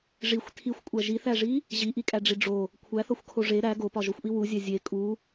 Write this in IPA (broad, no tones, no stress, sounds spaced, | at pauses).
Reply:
ʐ i xʷ tʰ i xʷ kʷʼ æ ʒ i θ æ ʐ i | ʑ i ʔ i kʼ æ ɖ͡ʐ i ɖ͡ʐ o | kʷʰ æ θ ɒ xʷ kʰ o ʐ e ɾ æ ɡ o p ɒ ʒ o xʷ ʔ i w u zʲ æ zʲ e kʼ u